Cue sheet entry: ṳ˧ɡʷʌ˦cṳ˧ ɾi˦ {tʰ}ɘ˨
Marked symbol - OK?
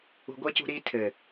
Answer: yes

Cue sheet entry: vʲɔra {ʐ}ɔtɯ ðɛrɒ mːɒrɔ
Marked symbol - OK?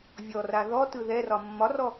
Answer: no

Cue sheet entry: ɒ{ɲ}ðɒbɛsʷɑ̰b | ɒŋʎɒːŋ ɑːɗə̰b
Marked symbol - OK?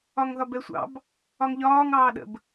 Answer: no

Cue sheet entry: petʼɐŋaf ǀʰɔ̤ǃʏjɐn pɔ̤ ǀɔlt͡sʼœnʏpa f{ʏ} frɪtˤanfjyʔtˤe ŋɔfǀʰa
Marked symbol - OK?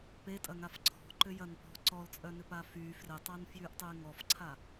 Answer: no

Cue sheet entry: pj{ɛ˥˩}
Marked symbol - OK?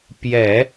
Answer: no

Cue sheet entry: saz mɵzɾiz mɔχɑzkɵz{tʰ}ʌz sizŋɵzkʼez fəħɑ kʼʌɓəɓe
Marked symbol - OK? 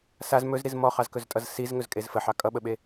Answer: no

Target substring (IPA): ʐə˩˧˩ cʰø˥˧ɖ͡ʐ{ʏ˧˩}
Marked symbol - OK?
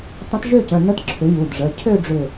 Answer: yes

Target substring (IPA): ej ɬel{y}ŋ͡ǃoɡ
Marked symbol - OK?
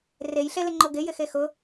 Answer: no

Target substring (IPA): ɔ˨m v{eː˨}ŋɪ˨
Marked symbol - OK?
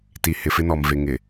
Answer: no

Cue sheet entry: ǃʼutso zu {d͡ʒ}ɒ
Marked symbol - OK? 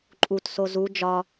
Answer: yes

